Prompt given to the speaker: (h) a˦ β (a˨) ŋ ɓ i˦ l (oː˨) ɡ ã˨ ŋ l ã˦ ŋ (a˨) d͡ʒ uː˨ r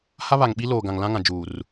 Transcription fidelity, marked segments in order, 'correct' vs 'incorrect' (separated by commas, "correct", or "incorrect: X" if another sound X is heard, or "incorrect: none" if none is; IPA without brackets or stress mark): correct, correct, correct, incorrect: ã˨